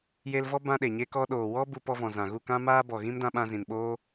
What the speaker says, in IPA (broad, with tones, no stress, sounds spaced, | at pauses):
j e˧ l v ɔ˦ b ã˧ ɗ e˨ ɲ e˧ k ɔ˧ ɗ oː˨ w ɔ˦ b u˧ p ɔ˧ v ɔ̃˨ z ã˨ ɣ u˦˨ k ã˦ m aː˦ b ɔ˨ ɣ ĩ˦ m d ã˧ ɓ ã˧ z ĩ˨ n ɓ oː˦